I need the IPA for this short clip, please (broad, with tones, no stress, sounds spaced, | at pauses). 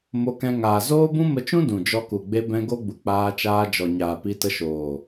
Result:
m o˧ k ɛ̃˧ ŋ aː˨ z oː˦ b ũ˦ m ə˧ t͡ʃ ũ˦ d ũ˨ d͡ʒ ɔ˧ k u˨ ɡ͡b e˧ b ɛ̃˧ ɡ o˦ ɡ͡b u˨ k͡p aː˧ t͡ʃ aː˧ d͡ʒ ɔ˨ ɲ aː˨ p i˧ t ə˧ ʃ oː˨